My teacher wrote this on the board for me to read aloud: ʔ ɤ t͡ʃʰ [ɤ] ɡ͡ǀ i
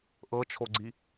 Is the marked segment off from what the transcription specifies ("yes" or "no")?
yes